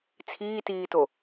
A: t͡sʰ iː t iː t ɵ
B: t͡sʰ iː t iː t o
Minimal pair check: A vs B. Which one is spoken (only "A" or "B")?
B